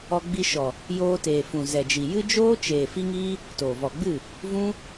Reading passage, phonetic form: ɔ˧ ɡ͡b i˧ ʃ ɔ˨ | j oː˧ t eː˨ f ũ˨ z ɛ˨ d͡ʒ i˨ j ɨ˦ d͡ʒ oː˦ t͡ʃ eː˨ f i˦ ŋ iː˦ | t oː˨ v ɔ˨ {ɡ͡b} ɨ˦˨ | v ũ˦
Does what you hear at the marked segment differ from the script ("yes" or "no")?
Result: no